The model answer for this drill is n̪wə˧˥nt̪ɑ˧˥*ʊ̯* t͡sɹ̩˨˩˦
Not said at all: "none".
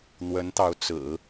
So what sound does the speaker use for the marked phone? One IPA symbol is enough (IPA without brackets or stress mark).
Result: ʊ̯